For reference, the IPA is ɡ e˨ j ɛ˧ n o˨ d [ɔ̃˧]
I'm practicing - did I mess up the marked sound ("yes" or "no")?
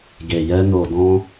no